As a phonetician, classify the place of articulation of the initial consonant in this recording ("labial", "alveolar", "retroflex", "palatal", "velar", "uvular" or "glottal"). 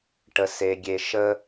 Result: retroflex